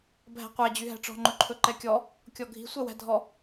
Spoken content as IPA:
bʱ æ̤ qʷ æ d͡ʑ y ɦ æ̤ ʈ͡ʂ ɔ̤ ŋ͡ǃ ɵ ǃʰ ɵ ǃ ɛ kʲ ɔ | kʲ ɔ ɡʱ i̤ sʷ ɛ w æ̤ dʱ ɔ

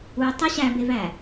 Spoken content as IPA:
u tˤ e ɕ æ b e v æ

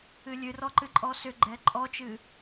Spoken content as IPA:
ɨ lʲ ɨ r ɔ ǃ ɨ ǃʼ ɔ s ʏ ɡ͡ǃ ɛ ǃʼ ɔ t͡ʃ ɨ

